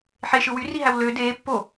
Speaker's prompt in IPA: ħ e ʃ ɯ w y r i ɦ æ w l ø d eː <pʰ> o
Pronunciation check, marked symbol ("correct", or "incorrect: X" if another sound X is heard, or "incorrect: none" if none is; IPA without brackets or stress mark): incorrect: pː